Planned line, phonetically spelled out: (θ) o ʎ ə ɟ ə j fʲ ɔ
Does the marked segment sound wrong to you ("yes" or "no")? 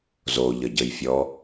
yes